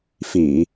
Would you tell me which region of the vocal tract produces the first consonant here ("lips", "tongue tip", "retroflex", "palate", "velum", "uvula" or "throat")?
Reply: lips